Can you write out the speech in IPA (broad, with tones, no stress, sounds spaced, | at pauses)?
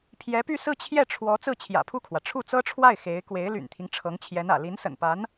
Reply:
pʰ j ɛ˧˥ p y˥˧ s ɹ̩˥˧ t͡ɕʰ j ɛ˥˩ ʈ͡ʂʰ w ɔ˧˥ t͡s ɹ̩˥˩ t͡ɕʰ j ä̰˨˩ pʰ u˥˩ kʰ w ä˩ ʈ͡ʂʰ u˥˩ t͡s ɤ˥ ʈ͡ʂʰ w a˥˩ ɪ̯ x e˧˥ ɪ̯ k w e˧˥ ɪ̯ l y̰˨˩ n t̪ʰ i˦ ŋ ʈ͡ʂʰ ɤ˧˥ ŋ t͡ɕʰ j ɛ˧˥ n ä̰˨˩ l i˧˥ n s ə̰˨˩ n p a˧˥ n